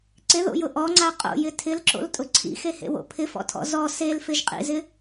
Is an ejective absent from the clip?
no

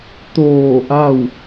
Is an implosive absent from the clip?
yes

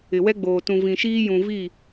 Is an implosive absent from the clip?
yes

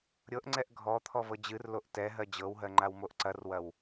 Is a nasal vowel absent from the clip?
yes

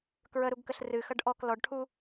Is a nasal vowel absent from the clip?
yes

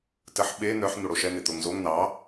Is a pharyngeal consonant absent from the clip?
no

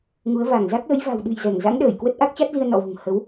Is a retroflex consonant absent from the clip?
yes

